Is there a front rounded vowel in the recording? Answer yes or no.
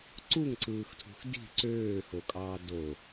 yes